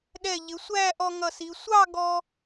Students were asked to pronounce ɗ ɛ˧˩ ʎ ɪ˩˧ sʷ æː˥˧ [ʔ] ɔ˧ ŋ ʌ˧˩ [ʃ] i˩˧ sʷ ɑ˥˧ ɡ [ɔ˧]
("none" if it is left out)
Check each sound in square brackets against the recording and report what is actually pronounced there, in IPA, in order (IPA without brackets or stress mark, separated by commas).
ʔ, s, ɔ˧